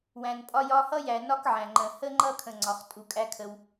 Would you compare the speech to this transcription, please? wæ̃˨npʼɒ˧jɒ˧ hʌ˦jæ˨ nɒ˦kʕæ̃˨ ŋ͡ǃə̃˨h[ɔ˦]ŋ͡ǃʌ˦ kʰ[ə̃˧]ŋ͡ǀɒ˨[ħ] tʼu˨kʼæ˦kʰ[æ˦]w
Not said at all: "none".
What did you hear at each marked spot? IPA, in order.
ə˦, ə̃˧, χ, ə˦

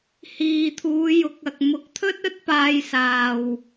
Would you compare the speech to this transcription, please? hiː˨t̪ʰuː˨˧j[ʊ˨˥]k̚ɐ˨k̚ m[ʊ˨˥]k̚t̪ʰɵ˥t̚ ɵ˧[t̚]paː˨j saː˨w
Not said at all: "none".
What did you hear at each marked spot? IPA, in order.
ʊ˨˥, ʊ˨˥, t̚

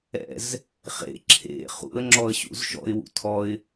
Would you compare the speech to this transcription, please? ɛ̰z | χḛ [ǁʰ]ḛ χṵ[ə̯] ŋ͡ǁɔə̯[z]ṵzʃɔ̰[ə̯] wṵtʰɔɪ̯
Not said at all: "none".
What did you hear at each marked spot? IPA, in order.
ǁʰ, ə̯, ɕ, ɪ̯

